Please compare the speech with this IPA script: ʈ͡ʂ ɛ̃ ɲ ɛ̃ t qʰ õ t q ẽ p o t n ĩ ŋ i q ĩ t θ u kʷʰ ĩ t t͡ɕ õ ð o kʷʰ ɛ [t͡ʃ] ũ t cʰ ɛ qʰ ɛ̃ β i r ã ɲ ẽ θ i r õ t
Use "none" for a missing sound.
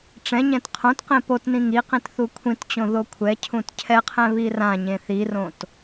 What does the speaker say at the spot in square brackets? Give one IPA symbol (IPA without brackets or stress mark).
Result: cʰ